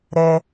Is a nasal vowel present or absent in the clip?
absent